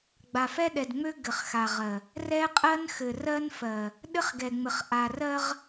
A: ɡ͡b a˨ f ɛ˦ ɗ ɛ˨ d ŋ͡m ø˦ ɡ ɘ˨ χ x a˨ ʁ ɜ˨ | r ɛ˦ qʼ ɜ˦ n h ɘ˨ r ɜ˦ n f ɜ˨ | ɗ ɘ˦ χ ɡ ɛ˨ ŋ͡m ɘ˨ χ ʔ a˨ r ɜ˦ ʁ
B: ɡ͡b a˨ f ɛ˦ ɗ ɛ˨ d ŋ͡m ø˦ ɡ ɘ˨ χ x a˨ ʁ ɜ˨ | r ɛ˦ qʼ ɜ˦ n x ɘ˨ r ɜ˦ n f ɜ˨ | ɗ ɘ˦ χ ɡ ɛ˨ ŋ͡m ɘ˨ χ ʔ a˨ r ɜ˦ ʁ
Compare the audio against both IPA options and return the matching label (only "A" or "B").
B